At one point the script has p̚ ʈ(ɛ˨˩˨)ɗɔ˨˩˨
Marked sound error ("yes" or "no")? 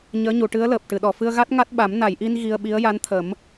yes